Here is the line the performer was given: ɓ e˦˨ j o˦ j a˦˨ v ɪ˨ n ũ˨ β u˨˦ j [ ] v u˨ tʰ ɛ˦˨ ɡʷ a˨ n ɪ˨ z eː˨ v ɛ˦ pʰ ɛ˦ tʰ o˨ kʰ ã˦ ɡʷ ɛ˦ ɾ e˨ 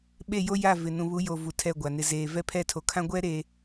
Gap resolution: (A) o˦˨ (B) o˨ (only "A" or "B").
B